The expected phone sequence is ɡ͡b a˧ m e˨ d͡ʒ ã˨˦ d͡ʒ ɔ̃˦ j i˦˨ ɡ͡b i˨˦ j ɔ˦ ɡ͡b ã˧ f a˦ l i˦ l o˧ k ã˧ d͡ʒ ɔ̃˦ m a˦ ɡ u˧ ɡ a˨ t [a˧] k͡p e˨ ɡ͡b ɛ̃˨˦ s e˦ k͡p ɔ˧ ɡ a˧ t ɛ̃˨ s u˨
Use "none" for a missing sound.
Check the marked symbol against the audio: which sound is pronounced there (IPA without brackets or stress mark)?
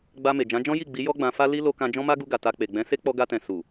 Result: a˧